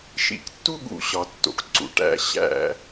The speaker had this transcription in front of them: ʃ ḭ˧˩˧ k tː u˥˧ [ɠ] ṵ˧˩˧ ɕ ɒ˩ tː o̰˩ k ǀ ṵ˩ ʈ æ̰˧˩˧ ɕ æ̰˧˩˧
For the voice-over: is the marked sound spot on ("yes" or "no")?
yes